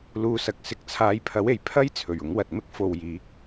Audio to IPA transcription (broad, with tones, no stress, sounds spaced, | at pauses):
l uː˧ s ɐ˨ k̚ s ɪ˨˥ k̚ t͡sʰ aː˨˧ j pʰ ɐ˨˥ w e˨˩ j pʰ ɐ˥ j t͡sʰ ɵ˨˩ ɥ ʊ˨˥ ŋ w ɐ˨ t̚ m ɪ˥ k̚ f o˨ w j iː˨˥ k̚